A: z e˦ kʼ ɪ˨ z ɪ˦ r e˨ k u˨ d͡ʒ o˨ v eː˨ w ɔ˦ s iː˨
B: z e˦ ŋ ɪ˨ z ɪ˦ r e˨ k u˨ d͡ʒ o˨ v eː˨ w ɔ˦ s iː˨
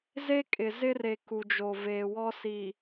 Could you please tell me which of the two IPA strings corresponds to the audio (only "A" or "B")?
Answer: A